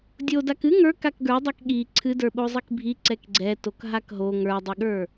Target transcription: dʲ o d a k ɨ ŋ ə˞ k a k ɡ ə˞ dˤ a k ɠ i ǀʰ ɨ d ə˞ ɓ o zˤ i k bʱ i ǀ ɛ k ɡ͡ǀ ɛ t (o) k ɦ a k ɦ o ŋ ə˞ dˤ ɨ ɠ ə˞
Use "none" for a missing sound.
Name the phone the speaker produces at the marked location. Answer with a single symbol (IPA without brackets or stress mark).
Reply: o